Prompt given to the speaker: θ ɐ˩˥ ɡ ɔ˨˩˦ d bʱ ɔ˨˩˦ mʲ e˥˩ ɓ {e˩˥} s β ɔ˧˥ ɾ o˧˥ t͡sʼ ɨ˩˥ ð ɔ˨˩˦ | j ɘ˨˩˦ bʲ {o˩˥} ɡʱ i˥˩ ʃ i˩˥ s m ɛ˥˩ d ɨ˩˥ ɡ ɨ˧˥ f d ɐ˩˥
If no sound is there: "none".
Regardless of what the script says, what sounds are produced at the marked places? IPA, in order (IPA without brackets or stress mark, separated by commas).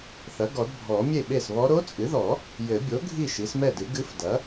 e˥˩, o˩˥